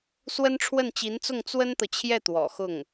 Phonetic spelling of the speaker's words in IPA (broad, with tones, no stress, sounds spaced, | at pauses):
s w ə˥ n ʈ͡ʂʰ w ə˥˩ n t͡ɕ i˧˥ n t͡s ʊ˥˩ ŋ t͡s w ə˥ n t̪ ɤ˨ t͡ɕʰ j ɛ˥˩ t̪ w ɔ̰˨˩ x ʊ˥˩ ŋ